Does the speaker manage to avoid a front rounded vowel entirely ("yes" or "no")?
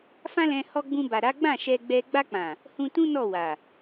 yes